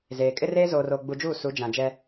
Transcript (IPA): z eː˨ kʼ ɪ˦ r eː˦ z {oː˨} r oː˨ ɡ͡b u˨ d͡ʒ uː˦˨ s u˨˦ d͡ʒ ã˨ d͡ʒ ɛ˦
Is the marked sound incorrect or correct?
correct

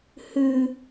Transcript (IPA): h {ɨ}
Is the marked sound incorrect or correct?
correct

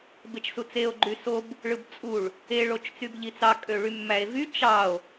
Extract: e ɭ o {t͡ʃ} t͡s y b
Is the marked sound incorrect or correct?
correct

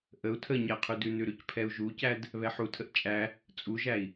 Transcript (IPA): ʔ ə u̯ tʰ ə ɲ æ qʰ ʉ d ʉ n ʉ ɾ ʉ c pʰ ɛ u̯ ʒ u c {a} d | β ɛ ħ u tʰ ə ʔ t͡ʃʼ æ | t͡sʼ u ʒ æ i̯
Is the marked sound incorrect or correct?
incorrect: æ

